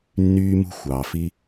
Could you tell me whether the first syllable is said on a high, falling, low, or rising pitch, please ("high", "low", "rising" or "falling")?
high